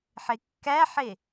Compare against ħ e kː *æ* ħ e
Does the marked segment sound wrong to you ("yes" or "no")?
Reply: no